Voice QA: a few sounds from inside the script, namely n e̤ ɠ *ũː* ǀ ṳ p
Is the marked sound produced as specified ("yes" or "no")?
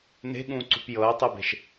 yes